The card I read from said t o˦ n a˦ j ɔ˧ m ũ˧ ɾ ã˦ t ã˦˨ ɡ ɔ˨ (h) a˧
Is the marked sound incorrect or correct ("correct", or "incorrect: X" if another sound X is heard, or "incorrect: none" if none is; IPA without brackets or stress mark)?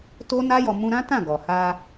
correct